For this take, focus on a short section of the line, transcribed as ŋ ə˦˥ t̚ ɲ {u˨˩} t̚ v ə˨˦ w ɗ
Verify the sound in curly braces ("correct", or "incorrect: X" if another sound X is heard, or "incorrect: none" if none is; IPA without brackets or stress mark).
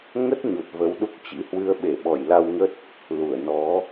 correct